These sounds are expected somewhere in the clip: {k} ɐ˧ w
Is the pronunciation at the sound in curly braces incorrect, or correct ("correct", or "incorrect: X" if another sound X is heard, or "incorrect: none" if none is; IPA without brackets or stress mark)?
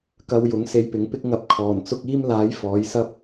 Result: correct